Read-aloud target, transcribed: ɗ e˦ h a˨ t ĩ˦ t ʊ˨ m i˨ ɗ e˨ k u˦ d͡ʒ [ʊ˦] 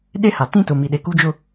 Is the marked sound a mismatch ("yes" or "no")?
no